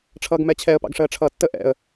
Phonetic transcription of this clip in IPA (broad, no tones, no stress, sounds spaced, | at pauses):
ʈ͡ʂʰ ʌː ɡ m ɛ t͡ɕʰ ɛ ə̯ p ɑ̰ ɡ ʂ əː ʈ͡ʂʰ ʌː tː ə ʔ ɛ̰ ə̯